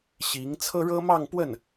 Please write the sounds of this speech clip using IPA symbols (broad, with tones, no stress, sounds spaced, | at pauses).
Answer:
ɕ i˧˥ ŋ t͡sʰ ɤ˥ ɻ ɤ˥ m ɑ˥˧ ŋ p w ə˥˩ n